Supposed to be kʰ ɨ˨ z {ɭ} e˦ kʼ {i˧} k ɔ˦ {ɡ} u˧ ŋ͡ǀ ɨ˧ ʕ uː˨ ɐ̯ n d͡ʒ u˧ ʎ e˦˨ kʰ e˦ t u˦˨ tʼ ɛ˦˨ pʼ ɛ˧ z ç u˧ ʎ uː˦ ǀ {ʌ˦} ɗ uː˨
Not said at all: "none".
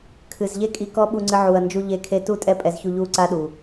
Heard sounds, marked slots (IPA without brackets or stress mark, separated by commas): ʎ, i˧, ɓ, a˦